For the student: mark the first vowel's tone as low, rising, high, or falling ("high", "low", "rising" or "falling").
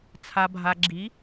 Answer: low